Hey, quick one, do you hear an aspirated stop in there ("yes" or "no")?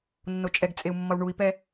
no